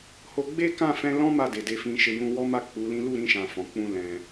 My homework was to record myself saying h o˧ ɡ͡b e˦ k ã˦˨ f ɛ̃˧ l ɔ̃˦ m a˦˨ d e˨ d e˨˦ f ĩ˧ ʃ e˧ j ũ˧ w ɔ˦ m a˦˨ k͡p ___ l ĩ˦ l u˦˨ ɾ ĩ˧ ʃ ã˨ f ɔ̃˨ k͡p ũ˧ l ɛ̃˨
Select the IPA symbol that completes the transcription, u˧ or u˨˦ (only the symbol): u˨˦